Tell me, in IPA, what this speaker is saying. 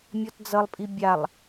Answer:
mʲ ɔ t d͡z ʌ lˠ pʼ i bʲ a lˠ

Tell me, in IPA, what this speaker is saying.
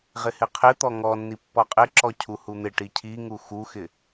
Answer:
ʁ ɪ h ɪ qʰ ɪ t̪ ɔ ŋ ɔ nː i pː ɔ qʼ ɪ ǁ ɔ cʰ u h u n̪ ɪ ʈ i cʰ i ŋ u x u x ɪ

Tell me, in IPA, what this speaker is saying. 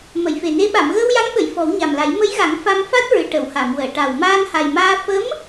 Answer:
m ə˨˩˨ j f e˨˩ n e˧˥ ɓ a˨˩˨ m ɣ əː˧ w j a˧˥ ŋ ɓ ə˨˩˨ j f ɔ˨˩˦ w ɲ a˨˩ m l a˨˩˦ j m ə˧˥ j ɣ a˨˩˦ ŋ f a˧ m f a˦˥ t̚ ɹ ɨ˨˩ ʈ ə˨˩˨ w h a˨˩˨ m w əː˨˩˨ ʈ a˨˩ w m aː˧ n h a˨˩ j m aː˧ f ə˧˥ m

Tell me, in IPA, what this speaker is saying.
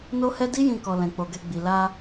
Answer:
n o˦ h ɛ˦ d i˦ j ĩ˧ k ɔ˨ l ɛ̃˨ k͡p o˨ ɡ ɛ˧ ɡ͡b i˨ l a˧

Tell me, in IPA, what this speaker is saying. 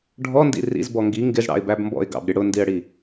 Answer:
ɖʱ ɔ n d ḭ r ḭ z b ɔ ŋ ɡ i ŋ ɡ ɪ z ɽ ɑ̰ ɪ̯ b æ b m b ɔ̰ ɪ̯ ɡ ɑ̰ b ɾʲ ə ɽ ʊ n d i ə̯ ɽ i

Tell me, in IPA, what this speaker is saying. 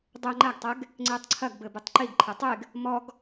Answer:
dˤ ɘ ŋ͡ǃ a ɡ tˤ ɛ ɡ | ŋ͡ǀ e tˤ ǀʰ ɐ ɡ b ɘ b ɨ tˤ ǃ i ɡ ǃʰ ɛ tˤ e ɡ | m ɔ ɡ

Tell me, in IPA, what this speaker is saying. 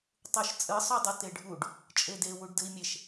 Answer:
tˤ u ʃ t͡sʼ ɨ sˤ u dˤ ɘ t e ɖʱ u ɖ | t͡ʃʼ e d e w u ɖ d ɘ i̯ mʲ e ʃ

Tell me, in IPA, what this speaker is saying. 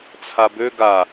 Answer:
t͡sʰ a b ø ɡ a

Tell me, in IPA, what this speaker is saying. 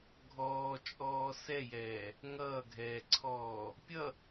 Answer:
ɡʱ ɔː t͡ʃʼ ɔː s ɛ j ɛː | ŋ ʌː ɡʱ ɛː ǀʰ ɔː | pʲ ʌ

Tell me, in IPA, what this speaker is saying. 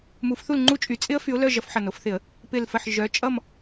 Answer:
m u˨˩˦ f θ u˦˨ l ŋ͡ǃ u˦˨ t͡ʃʼ y˨˩˦ t͡sʼ ɪ˦˥ ə̯ f y˨˦ ʊ̯ l œ˦˨ ʒ ʌ˨˩˦ f ħ ʌ˨˩ n o˨˩˦ f θ ɪ˨˩˦ ə̯ | p ɪ˨˩ l f ə˨˩ ħ ʒ œ˨˦ t͡ʃʼ ʌ˦˨ m

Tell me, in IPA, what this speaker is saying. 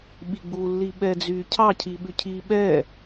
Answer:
ɓ i ɡ͡b u lː i ɓ ɛ d͡z yː cʰ ɑ cʰ i ɓ ʉ cʰ i ɓ ɛ

